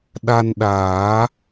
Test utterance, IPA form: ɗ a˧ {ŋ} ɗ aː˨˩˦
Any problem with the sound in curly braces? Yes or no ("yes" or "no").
yes